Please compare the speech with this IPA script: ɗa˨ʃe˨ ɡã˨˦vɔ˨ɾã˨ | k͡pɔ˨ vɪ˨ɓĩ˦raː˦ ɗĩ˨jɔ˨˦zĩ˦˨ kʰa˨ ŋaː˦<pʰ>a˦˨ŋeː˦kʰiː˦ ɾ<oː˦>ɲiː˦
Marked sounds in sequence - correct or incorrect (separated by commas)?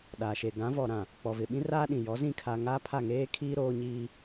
correct, correct